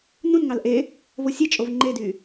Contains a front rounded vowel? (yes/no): yes